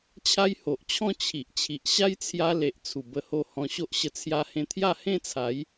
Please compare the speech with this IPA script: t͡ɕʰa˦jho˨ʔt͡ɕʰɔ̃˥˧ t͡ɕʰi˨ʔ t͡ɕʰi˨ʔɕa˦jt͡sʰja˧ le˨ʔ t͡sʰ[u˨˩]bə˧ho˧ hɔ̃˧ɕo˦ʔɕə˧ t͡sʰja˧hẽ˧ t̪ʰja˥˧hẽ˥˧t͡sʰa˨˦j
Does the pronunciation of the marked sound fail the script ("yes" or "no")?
no